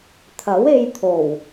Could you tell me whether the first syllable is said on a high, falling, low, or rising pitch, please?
rising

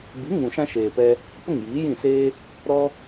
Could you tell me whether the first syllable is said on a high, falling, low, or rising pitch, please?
rising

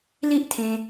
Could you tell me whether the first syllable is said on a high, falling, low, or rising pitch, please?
high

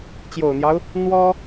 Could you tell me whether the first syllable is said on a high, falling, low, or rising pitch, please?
low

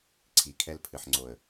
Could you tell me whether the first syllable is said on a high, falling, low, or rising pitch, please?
low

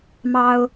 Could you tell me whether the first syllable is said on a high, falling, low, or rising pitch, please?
high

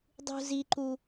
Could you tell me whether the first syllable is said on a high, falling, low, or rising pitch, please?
high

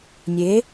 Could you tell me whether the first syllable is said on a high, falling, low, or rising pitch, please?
rising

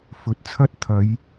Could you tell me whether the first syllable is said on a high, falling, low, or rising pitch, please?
rising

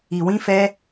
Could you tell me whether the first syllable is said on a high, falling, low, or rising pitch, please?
low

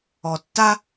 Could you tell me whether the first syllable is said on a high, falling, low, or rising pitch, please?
low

